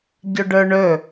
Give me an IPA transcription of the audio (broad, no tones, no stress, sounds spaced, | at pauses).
ɟ ɵ ɖ ə˞ ɳ ɵ